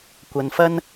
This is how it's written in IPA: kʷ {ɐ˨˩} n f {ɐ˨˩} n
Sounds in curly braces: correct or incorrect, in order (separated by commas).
incorrect, incorrect